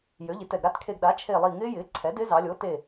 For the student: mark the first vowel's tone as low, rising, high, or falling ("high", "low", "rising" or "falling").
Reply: rising